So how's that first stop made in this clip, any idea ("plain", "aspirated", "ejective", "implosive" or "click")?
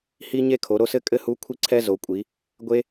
aspirated